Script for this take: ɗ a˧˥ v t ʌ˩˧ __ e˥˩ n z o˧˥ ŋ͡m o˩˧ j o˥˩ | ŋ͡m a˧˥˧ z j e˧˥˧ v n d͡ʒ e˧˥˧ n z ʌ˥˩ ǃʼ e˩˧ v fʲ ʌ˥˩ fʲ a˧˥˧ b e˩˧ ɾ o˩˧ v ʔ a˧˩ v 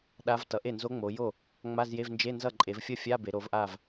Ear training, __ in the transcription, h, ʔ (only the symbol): ʔ